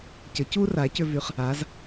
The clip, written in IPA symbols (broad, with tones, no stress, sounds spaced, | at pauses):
c ə˨˥ c u˥ r a˨˥ c ʏ˥ v y˨˥ χ | a˨˥ z